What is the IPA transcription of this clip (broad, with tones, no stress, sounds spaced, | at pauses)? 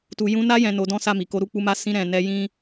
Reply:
t u˨ j ũ˧ n a˧ j ɛ̃˨ n o˨˦ d ɔ̃˦ s a˦˨ m i˨ k o˧ ɾ u˧ k͡p u˧ m a˧ s ĩ˧ ɾ ɛ̃˨ n ɛ˧ j ĩ˦